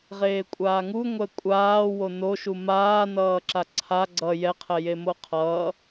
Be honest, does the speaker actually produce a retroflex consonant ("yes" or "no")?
no